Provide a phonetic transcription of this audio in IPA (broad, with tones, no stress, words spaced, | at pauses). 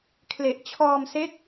kʰle˨˩ʔt͡ɕʰɔː˧mse˦˥k̚